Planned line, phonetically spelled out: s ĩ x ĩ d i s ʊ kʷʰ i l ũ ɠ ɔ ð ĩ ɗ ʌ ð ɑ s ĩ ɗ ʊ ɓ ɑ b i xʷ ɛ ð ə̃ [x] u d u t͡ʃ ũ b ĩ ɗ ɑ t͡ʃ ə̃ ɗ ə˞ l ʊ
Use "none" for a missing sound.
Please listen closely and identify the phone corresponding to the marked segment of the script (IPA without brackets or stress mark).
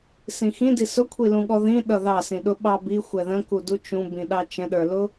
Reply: k